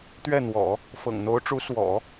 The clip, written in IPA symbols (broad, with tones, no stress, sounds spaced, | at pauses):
t̪ ɥ ɛ˥˩ n̪ w ɔ̰˨˩˦ | f ɤ̰˨˩ ŋ n̪ o˧˥ ʊ̯ ʈ͡ʂ u˧˥ s w ɔ̰˨˩˦